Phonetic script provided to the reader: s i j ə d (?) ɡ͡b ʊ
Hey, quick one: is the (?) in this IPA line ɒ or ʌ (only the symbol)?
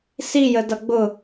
ʌ